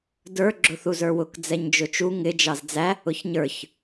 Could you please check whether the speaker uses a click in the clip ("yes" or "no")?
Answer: yes